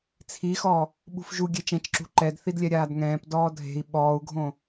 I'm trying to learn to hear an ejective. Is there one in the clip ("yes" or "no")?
no